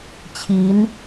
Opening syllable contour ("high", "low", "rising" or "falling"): rising